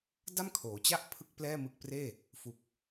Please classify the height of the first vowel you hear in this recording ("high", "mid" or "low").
low